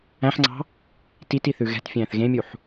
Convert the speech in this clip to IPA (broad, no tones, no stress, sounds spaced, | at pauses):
æ̃ ħ ŋ͡ǀ ɑ̤ | t i t i θ ʉ ɣ ɛ̤ t fʲ æ̃ː θ ɣ ẽ mʲ u ħ